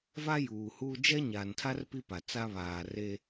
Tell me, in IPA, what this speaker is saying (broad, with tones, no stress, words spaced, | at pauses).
va˦juː˨huː˦ d͡ʒɛ˦ɲaː˨ntʰa˦r pi˦pa˨t͡sa˦ βaː˨re˦